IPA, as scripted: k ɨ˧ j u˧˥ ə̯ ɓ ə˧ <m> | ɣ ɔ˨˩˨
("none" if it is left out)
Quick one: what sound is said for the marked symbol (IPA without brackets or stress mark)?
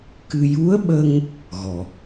ŋ